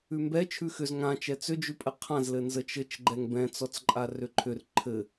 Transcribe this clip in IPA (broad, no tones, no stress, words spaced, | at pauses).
ʉmbɛ t͡ʃʰʉxʏz ŋã t͡ʃɛt͡sʏd͡ʒʉpʼɘ qʰãzlɘ nzət͡ʃɘt͡ʃɡ͡ǃɛŋ bɛ̃t͡sɔt͡sǃʼa rʏǃʰʏr ǃʰɘ